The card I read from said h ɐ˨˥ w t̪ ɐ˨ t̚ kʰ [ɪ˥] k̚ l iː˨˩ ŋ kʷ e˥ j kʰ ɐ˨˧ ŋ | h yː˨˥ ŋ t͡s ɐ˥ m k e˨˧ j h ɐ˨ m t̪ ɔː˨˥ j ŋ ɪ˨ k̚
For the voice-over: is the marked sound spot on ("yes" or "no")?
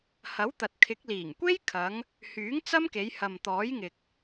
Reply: no